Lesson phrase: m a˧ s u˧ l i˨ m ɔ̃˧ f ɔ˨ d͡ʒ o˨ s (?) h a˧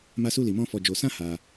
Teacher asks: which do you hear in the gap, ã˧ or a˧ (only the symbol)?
ã˧